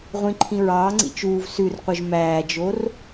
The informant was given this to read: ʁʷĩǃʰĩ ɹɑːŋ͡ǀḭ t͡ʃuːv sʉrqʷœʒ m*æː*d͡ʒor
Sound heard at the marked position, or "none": æː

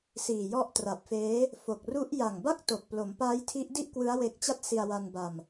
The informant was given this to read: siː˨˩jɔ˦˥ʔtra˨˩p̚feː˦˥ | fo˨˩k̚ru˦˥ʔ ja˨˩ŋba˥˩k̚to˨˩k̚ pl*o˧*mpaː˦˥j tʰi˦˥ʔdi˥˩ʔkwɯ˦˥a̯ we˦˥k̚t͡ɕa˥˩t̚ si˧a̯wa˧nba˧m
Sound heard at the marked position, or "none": o˩˦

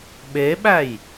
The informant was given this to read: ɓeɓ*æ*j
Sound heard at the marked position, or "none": æ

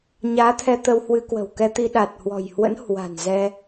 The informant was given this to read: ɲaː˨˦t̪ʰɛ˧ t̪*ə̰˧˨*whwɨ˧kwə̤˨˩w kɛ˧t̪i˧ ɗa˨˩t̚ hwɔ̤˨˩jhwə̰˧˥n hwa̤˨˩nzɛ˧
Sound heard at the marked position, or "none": ə˧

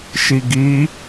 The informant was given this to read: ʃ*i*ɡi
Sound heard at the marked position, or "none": i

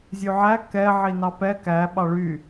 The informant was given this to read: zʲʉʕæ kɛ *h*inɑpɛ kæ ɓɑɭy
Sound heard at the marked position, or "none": ʕ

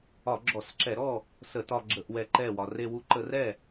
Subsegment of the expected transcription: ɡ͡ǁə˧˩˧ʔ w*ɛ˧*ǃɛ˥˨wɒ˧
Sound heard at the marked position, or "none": ɛ˧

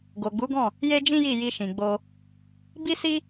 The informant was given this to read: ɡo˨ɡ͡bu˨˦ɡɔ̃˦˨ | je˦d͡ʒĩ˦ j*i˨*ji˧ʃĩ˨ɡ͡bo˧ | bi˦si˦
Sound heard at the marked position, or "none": i˦˨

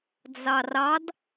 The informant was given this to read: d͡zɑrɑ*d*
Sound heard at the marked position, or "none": d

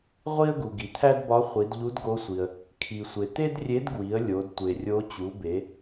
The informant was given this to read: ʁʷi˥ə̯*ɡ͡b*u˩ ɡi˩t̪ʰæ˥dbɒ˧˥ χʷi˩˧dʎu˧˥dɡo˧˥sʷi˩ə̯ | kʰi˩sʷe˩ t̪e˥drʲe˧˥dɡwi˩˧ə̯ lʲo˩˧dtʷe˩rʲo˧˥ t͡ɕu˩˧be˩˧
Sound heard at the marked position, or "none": ɡ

